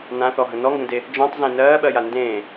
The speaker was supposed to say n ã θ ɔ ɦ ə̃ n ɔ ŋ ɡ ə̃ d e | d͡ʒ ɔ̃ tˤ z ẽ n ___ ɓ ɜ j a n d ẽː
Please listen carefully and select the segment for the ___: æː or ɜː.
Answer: ɜː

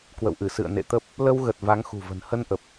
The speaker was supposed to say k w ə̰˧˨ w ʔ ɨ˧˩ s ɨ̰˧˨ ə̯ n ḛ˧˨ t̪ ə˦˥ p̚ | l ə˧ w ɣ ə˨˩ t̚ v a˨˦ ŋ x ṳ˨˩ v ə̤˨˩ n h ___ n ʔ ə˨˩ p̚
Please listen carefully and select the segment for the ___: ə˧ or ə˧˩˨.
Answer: ə˧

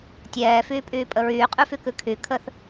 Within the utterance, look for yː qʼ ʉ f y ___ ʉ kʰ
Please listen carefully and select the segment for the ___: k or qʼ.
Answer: k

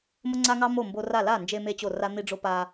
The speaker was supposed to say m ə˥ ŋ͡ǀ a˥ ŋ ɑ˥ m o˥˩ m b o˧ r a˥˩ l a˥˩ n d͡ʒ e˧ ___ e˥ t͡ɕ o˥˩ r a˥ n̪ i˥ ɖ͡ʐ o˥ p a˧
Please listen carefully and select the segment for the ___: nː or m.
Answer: m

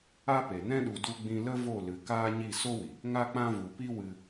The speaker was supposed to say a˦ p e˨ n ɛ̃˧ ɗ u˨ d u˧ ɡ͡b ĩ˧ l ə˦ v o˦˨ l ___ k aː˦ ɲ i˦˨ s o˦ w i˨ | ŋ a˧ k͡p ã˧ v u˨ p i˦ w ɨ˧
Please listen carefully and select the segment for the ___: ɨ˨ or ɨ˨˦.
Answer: ɨ˨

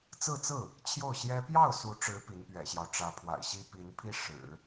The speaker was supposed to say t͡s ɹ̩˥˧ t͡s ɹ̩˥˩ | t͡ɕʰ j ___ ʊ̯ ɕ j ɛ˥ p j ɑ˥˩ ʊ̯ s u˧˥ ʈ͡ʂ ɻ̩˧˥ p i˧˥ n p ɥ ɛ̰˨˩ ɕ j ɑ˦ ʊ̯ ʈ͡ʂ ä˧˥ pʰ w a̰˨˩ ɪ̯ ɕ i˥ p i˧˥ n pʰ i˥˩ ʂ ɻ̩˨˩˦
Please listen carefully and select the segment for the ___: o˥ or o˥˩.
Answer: o˥˩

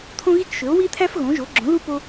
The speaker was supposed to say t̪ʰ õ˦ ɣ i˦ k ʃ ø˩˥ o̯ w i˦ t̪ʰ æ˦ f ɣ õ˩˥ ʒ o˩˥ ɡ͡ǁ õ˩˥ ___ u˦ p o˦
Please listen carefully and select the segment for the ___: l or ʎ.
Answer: l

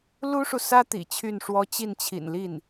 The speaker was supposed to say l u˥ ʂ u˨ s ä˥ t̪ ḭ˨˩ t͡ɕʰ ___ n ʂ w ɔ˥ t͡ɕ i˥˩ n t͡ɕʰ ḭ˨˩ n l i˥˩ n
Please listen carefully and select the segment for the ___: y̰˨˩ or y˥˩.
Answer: y˥˩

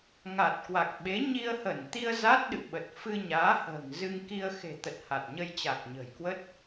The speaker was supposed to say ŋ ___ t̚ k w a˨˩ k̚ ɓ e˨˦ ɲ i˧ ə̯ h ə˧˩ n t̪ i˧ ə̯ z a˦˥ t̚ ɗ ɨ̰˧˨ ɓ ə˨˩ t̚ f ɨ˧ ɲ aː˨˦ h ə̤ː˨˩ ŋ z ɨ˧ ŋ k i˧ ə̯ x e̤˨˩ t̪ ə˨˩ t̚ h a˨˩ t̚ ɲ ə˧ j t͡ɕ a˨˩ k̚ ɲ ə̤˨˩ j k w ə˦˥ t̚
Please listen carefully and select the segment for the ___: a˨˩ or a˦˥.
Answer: a˨˩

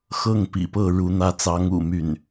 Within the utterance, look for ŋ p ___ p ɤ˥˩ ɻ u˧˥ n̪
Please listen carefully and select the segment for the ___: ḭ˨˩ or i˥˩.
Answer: ḭ˨˩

